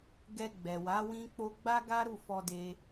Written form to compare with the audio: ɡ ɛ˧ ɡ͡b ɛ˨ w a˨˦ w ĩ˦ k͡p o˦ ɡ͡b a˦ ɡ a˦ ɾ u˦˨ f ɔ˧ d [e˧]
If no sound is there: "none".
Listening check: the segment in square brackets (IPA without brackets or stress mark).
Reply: e˧